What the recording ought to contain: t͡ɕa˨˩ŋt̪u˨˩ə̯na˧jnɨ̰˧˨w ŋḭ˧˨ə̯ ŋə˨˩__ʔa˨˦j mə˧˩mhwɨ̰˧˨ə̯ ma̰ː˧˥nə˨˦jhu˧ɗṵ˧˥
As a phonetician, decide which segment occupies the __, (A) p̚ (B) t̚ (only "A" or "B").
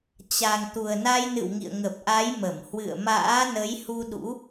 A